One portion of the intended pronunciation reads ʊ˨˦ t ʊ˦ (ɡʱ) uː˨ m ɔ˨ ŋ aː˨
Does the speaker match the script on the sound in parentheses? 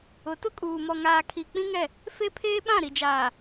no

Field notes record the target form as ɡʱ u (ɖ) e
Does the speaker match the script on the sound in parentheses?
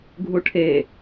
no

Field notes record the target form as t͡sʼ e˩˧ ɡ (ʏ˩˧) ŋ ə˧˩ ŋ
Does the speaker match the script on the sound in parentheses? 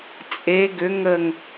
yes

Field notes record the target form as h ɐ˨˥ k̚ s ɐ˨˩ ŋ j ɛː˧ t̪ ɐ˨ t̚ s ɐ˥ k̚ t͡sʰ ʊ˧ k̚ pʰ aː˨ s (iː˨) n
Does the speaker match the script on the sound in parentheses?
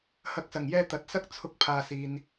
yes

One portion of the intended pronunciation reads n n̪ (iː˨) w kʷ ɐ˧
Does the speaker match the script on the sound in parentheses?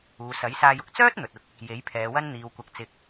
yes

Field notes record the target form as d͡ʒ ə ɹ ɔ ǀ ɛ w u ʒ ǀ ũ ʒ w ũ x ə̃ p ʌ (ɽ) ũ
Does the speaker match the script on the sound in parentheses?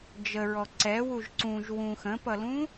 no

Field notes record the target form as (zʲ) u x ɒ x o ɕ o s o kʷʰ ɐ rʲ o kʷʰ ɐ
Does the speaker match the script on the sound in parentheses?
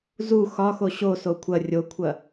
no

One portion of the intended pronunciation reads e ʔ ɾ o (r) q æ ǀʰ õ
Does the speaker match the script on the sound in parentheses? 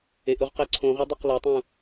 no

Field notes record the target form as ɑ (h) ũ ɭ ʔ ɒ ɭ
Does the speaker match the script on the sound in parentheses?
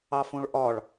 no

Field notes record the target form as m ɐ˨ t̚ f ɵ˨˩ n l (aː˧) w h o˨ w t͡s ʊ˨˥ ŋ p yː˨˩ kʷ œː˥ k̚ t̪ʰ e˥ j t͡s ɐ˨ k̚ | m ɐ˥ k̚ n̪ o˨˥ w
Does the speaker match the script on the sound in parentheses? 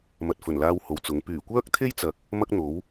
yes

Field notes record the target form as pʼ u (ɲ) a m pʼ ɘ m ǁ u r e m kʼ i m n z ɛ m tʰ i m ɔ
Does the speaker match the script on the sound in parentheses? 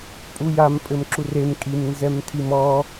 no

